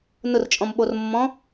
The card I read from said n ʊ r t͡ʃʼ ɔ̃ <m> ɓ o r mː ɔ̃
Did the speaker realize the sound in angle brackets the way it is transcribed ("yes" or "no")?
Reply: yes